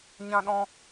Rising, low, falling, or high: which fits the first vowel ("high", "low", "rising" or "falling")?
high